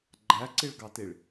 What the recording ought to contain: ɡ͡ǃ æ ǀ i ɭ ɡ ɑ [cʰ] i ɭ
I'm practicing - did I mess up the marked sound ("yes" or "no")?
yes